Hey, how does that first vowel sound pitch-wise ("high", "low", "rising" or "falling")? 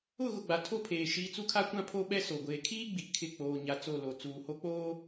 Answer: falling